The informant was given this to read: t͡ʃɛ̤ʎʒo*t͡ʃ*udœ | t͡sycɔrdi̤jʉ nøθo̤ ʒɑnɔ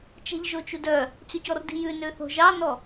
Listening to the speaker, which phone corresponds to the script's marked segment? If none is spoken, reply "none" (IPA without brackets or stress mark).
t͡ʃ